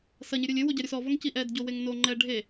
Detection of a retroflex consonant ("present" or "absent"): present